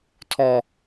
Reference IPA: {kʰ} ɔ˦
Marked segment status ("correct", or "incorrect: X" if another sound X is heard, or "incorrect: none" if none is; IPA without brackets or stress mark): incorrect: tʰ